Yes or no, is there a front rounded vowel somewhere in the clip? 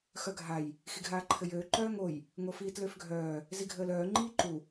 yes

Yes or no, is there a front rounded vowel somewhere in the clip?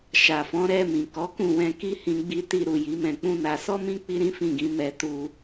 no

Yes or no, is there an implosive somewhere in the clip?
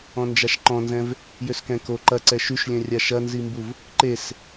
no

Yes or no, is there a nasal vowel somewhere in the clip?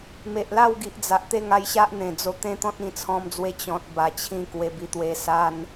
yes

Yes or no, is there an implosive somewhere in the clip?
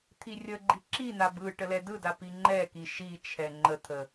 no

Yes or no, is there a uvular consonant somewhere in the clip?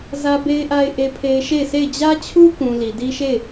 no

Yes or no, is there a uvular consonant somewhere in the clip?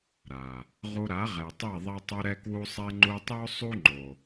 yes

